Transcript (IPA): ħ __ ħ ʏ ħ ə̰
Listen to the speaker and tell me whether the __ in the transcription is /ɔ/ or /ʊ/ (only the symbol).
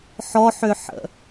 ɔ